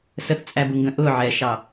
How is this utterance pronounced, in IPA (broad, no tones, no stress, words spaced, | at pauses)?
səθt͡sʼæbuŋɡə̃ ʔʊʕɛʃɑ